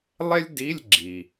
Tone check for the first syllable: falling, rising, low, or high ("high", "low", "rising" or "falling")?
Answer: high